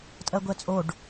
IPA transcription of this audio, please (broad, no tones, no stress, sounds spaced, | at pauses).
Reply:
tʼ ɜ ɡʷ ɛ t͡sʼ o ɖ